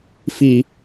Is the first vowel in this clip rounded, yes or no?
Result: no